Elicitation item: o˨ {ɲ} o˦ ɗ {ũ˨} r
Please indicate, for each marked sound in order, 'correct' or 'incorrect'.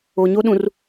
correct, correct

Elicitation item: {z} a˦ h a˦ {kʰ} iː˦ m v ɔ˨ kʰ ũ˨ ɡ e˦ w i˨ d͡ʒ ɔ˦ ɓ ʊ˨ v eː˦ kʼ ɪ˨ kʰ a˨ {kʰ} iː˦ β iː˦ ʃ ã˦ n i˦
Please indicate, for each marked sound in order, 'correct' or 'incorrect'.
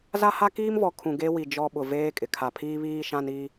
correct, incorrect: k, incorrect: pʰ

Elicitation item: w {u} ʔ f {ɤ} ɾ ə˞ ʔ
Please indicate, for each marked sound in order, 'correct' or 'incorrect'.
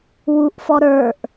correct, incorrect: ɔ

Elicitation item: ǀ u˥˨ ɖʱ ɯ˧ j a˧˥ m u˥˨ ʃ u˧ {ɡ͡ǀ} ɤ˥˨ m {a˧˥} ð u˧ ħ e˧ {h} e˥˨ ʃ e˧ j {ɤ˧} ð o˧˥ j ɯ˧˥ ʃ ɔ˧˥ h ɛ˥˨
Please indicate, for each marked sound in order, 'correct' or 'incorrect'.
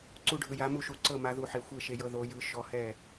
incorrect: ǀ, correct, incorrect: xʷ, correct

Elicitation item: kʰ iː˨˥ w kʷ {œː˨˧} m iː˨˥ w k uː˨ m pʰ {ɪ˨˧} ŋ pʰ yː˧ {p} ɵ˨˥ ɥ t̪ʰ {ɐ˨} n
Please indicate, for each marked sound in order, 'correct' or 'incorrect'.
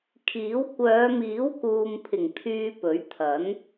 correct, incorrect: ɪ˨˩, correct, incorrect: ɐ˨˥

